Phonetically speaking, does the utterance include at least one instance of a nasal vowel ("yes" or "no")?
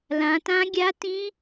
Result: yes